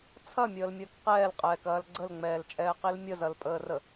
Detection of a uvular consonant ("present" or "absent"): present